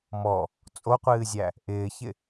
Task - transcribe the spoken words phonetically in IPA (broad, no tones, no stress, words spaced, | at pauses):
mɔ | t͡sʼoqʷɨːzʲæ | ʔɪːçɪ